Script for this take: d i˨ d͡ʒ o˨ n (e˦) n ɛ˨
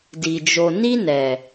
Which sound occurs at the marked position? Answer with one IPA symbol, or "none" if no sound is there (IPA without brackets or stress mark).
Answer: i˦